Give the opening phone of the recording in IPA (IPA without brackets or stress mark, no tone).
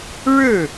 ɻ